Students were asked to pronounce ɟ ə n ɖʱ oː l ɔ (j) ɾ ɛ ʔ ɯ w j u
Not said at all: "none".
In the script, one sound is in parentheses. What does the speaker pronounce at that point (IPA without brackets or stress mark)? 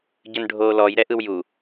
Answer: j